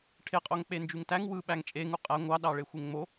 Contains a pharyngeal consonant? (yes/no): no